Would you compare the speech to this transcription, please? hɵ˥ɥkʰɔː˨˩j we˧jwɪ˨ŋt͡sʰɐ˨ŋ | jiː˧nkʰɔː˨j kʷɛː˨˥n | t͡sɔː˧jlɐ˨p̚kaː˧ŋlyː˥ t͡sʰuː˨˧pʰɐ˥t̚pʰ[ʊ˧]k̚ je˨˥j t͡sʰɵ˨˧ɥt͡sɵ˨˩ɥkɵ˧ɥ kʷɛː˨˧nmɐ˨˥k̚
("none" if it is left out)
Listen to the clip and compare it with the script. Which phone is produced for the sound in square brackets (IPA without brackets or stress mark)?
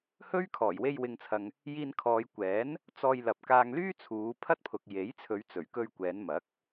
ʊ˨